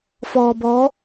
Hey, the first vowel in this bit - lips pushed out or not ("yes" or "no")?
yes